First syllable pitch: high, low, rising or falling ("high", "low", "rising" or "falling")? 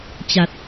low